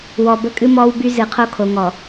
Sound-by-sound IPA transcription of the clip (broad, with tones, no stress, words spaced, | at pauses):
wɔ˨ bə˦kʼɨ˦ mɔː˦wby˦ zɨ˨qʰo˦kʰo˨ ŋɔ˨